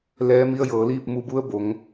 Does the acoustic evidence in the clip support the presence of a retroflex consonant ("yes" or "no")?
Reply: no